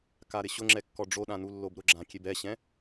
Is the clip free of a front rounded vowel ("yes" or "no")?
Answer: yes